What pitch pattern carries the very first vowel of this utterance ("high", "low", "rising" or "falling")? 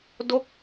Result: falling